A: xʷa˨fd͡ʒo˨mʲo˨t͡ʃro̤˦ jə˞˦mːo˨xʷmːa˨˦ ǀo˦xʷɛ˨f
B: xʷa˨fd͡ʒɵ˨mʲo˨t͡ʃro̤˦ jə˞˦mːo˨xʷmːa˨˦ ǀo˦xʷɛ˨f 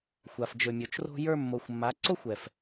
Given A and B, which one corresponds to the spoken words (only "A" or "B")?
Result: B